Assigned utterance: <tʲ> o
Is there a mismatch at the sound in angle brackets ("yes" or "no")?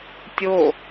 no